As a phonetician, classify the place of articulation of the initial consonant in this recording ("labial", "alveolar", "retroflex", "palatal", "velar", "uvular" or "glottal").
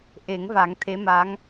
glottal